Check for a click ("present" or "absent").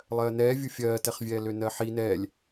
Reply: absent